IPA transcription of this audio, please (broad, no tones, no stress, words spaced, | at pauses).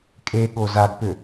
kʼeɠo zaɡpʏ